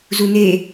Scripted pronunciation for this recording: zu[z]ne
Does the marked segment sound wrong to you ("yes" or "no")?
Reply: yes